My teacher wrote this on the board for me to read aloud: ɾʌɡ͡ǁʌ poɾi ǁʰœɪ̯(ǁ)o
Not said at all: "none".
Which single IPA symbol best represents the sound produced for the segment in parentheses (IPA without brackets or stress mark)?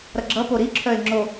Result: ŋ͡ǁ